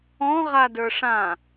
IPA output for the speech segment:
ɔ̃ʁadə˞ ʂã

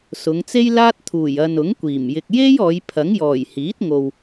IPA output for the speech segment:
sʊ˨˧ŋt͡se˥jlaː˥t̚ t̪ʰuː˨˩jɐ˨n ʊ˨˥ŋkʷiː˨˩m jɪ˨k̚je˥j ɔː˨˧jpʰɐ˨˥ŋjɔː˨˩j hiː˨˥t̚ŋo˨w

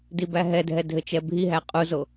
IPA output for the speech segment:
dibæɦɛdʱɛ dʱɘt͡ʃɛbʱiɦæ qʼuzo

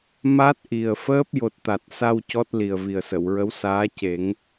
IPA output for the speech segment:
ma˦˥t̚ ʔi˨˩ə̯fəː˦˥p̚ jo˨˩t̚t̪a˨˩t̚sa˧w cɔ˦˥t̚li˨˩ə̯ vi˨˩ə̯sə˨˩˨wɹə˧˥wsaː˧˥ ce˨˩˦ŋ

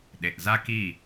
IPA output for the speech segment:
ɗe˨ʔ za˦ki˦˨

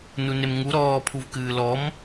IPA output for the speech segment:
nunemŋu ɾɔːpʰuv kɨːlɔm

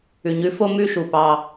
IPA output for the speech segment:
ʉ˨ɲʉ˨˦fo˦ mʉ˦ʃu˨pɑ˧

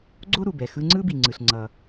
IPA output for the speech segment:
ɡ͡ǀo˥ɾu˩bɛ˩ xɯ˧ ŋ͡ǀɯ˥bi˩ŋ͡ǀɯ˩ɬ ŋ͡ǀʌ˩

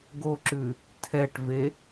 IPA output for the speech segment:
ɡoǁʉ | tʰɛʈve

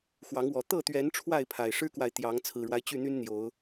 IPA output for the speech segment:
xwɑ˨˦ŋwɔ˨˩ t̪ɤ˥˨t̪ɥɛ˨˦n ʈ͡ʂʰwa˥˨ɪ̯pʰa˨˩ɪ̯ʂɻ̩˦kwa˨ɪ̯ t̪jɑ˨˦ŋ t͡sʰɹ̩˨˩ɻwa˦ɪ̯ t͡ɕy˥˨n̪y˦nn̪jo˨˦ʊ̯

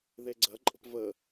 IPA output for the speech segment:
ðeɡ͡ǀɐǃʼə̤p və

